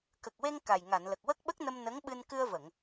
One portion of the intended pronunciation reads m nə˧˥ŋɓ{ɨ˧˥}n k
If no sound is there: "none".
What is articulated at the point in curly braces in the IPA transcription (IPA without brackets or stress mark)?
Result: ɨ˧